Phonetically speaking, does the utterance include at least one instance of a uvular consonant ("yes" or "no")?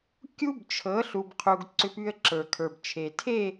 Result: yes